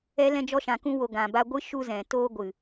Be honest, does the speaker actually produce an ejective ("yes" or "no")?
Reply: no